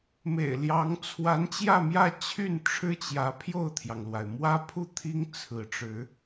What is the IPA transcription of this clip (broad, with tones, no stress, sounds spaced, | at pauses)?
m ḛ˨˩ ɪ̯ l j ɑ˧˥ ŋ t͡sʰ w a˧˥ n t͡ɕ j ä˥˧ m j ä˥˧ t͡ɕʰ y˥˩ n ʈ͡ʂʰ ɻ̩˥ t͡ɕ j ä˧˥ pʰ j o˥˩ ʊ̯ t̪ʰ j ɑ˩ ŋ l w a˩ ɪ̯ m w ä˥ pʰ u˥˩ t̪ʰ i˥ ŋ t͡sʰ ɹ̩˧˥ ʈ͡ʂ ɻ̩˧˥